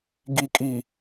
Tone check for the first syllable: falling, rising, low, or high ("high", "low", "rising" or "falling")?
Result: low